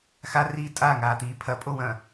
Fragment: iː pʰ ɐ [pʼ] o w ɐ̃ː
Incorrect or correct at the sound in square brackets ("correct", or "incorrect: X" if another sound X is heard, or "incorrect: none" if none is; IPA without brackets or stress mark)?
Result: correct